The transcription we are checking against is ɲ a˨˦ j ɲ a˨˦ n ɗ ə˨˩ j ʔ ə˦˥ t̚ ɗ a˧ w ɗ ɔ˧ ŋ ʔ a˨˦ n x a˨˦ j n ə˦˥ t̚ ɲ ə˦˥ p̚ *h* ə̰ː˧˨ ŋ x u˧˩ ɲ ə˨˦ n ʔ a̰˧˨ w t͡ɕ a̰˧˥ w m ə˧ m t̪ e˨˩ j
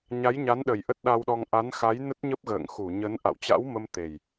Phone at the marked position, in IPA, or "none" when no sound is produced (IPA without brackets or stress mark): ɣ